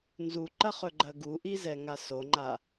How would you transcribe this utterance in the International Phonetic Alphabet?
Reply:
n z u ǃ ɐ χ ɵ ɡ͡ǃ ɐ ɡ u ʔ i z ɛ ŋ a s o ŋ͡ǃ a

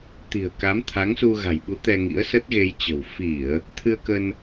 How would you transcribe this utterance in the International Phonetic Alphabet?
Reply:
t̪ i̤˨˩ ə̯ k a˨˦ m t̪ʰ a˨˦ ŋ s u˧ ɣ a̤˨˩ j ɓ u˨˦ t̪ ɛ˧ ŋ ḭ˧˥ ə̯ s ə˦˥ t̚ ɣ e˧ j t͡ɕ ə̤˨˩ w f i˧˩˨ ə̯ | t̪ʰ ɨ˧ ə̯ k ə˧ n

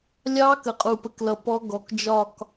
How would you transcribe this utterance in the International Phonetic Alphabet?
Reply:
lʲ ɑ˦˥ k ə˨˩ qʼ u˨˩ p ə˧ k l ʌ˨˩ p ɔ˦˥ ɡ ɔ˨˩ k d͡ʒ ɒ˥˧ k

